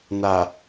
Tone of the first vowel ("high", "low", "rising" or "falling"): low